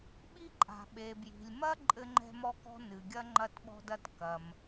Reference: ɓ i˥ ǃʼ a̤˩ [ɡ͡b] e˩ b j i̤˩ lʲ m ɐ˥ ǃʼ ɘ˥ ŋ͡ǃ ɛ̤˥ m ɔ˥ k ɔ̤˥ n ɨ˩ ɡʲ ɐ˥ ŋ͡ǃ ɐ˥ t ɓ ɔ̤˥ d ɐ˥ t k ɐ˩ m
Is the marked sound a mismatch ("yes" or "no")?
yes